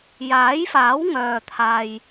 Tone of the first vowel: rising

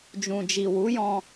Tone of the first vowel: low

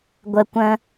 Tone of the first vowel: low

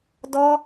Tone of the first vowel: high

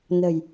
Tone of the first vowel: low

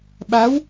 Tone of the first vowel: rising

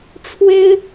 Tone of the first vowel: high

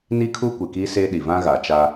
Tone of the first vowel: high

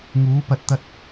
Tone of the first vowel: rising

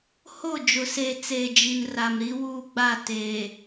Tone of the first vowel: falling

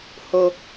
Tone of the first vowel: low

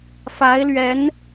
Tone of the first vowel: rising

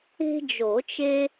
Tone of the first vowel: high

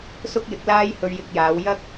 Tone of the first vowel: high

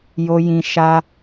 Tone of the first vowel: low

